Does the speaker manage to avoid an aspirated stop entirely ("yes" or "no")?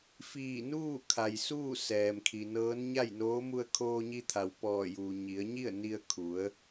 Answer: no